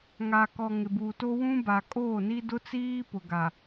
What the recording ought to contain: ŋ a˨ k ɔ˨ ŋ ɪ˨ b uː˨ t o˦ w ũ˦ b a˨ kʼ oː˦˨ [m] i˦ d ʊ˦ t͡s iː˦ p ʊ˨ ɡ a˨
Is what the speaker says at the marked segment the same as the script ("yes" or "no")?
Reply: no